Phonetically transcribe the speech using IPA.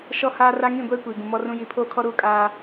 ʃ ɔ˦ h aː˦ r a˦ ŋ ĩ˦˨ ɡʷ eː˦ kʷ iː˨ ɡ ũ˨ m ɔ˦ r ũ˦ j i˨˦ pʰ oː˦ kʰ ɔ˦ ɾ u˦˨ kʼ aː˦

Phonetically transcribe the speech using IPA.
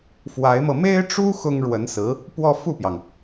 f w a˧˥ ɪ̯ m ɤ˧ m e˥ ɪ̯ ʈ͡ʂ u˥ x ʊ˥ ŋ ɻ w ə˧˥ n s ɹ̩˧˥ | p w ɔ˥˧ f u˥˩ p j ɑ˩ ŋ

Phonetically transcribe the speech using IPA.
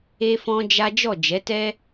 e˦ f ɔ̃˦ d͡ʒ a˦ d͡ʒ ɔ˦˨ d͡ʒ ɛ˨˦ t ɛ˦

